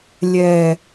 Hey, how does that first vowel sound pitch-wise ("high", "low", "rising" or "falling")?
low